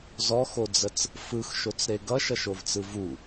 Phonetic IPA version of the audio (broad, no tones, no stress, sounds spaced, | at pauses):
z ɔ x o d͡z ə t͡s | f ɯ x ʃ o t͡s ɾ e ɡ ʌ ʃ ʌ ʃ o v t͡s ɯ v u